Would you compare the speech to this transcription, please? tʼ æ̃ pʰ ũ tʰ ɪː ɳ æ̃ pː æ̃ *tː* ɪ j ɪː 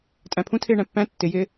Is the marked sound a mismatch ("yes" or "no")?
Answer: no